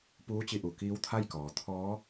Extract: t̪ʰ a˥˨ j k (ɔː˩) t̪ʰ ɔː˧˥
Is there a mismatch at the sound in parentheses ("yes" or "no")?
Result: no